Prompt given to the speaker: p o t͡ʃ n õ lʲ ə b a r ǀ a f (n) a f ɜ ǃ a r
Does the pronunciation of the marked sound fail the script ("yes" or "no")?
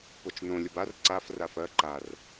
yes